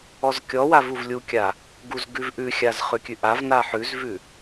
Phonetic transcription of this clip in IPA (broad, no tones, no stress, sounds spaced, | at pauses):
ɔ z kʲ ɔ w a v u v lʲ u kʲ a | ɡ u z ɡ ʉ v ʔ ʉ xʲ a z χ ʉ kʲ ʉ ʔ a v n a ħ ʉ z v ʉ